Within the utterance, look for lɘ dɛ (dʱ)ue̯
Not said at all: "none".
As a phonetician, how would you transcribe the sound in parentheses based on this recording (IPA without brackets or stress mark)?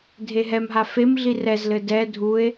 dʱ